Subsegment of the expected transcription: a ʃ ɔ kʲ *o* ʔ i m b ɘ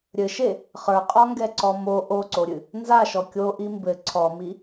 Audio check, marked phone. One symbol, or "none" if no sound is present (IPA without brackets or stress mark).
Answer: o